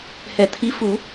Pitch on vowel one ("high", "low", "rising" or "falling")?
low